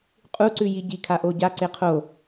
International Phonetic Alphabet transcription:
qʼuǀʉ jiɟikʰa ʔoɟa ǀeqʰo

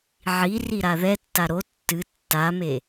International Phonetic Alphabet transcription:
ʕi riɾaðɛtːa ɾo tːɨ tːame

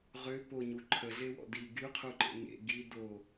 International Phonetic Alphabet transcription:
ʁø poɲu ǃʰəɮewɔ̰ di ɡyqʰuǃḛ ŋḛ ɡi do

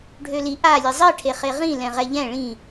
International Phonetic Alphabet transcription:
ɖʱøli ʔa lʲezˤi ʈʰeχeʁĩ lɛ̃ʁɛʎɛ̃ ɭĩ

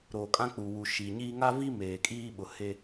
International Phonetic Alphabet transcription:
ɾoː˨kʼã˦ k͡pu˨wu˨ʃiː˨ɲiː˦ ŋa˦vi˦ meː˨kʼiː˦ ɓʊ˨he˦

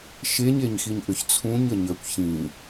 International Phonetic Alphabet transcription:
ʃeɲeɲxiɲ ʔʏçt͡sʰũɲ əɲəkʷ çĩ

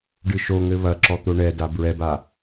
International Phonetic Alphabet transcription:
ɖɨʃoŋɘ βɐǁɔ t̪oɳɛda bɹɛba

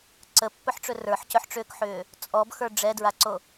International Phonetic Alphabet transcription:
ǀəpːɵħʈ͡ʂɵ rə˞ħcɵħʈ͡ʂʏːkħʏː | t͡sʼɔbxə˞ ɖ͡ʐɛdɹaǀo

